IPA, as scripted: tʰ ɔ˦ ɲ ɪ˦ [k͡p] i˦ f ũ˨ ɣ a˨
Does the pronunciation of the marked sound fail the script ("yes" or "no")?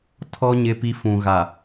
yes